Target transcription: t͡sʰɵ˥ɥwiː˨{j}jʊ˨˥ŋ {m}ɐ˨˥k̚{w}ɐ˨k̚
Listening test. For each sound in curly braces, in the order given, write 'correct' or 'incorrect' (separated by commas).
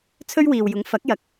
incorrect, incorrect, incorrect